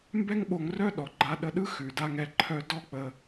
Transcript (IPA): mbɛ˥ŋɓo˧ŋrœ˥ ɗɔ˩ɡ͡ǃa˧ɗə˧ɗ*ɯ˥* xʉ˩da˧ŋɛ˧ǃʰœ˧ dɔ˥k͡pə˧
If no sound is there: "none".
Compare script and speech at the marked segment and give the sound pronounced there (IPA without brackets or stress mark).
ɯ˥